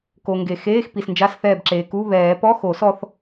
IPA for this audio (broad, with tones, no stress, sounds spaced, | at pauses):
k o˩ ŋ ɡ e˩ x eː˧˥˧ x p i˩ s n d͡ʒ a˧˥˧ s θ ɛː˧˩ b ǁ eː˩ k u˧˥˧ β ɛː˨˩˦ p ɔ˧˥˧ x o˨˩˦ s ɔ˧ θ